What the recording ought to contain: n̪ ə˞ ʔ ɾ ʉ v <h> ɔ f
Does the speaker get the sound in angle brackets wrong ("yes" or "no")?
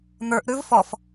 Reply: yes